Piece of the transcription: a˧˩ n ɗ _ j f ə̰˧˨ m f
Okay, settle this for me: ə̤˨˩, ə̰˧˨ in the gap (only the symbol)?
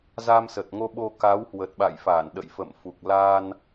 ə̰˧˨